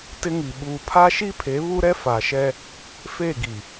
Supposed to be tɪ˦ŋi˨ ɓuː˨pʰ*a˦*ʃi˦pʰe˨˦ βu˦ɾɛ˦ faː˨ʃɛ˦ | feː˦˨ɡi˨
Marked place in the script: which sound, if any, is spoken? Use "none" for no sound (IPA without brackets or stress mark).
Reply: a˦